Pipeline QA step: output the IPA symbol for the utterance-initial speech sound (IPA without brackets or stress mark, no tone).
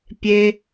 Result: pʲ